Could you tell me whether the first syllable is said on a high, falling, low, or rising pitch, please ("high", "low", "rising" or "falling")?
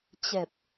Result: low